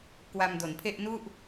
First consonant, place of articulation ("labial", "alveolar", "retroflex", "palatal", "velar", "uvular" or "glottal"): velar